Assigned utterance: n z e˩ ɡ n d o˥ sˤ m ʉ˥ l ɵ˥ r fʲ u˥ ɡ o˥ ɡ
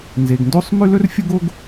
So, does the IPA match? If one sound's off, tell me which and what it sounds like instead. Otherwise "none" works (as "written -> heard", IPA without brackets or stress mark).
none